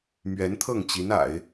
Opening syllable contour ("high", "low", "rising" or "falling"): rising